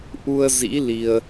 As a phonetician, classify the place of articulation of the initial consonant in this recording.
glottal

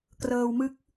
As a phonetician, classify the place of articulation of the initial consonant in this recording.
velar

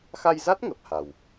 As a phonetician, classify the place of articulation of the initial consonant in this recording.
velar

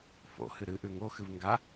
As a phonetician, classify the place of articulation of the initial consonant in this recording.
labial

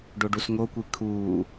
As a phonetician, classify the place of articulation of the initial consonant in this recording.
retroflex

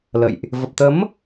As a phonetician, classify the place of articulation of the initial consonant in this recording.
alveolar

